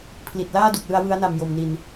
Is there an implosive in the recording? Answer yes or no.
no